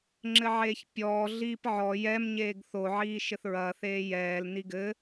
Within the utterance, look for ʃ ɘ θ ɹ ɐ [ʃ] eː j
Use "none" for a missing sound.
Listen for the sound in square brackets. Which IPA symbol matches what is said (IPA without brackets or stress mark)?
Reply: θ